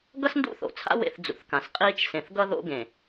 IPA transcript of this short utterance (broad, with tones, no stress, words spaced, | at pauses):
ɡʌ˦sndṵ˦˨θo̰˨t͡sʰa̰˦ wḛ˦θd͡zṵ˨θkã˨s qʼiː˦t͡ʃ sẽ˨θɡʌ˦ ðo̰˦ ɡẽ˨